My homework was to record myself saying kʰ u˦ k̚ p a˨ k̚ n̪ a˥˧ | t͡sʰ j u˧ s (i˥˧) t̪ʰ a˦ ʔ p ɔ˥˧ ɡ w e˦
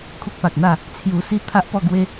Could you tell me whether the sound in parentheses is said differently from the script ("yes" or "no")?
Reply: no